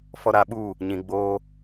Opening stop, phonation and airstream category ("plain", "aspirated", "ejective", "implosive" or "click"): implosive